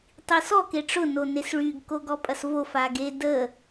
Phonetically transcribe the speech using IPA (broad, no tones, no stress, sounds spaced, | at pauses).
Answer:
tˤ i s ɔ k e ʈ͡ʂ ʊ n o n e s ɭ y ɡ k o ɡ ɔ pʼ ɐ s v o f a ɡ e d ə